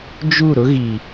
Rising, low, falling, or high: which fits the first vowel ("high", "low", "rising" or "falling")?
falling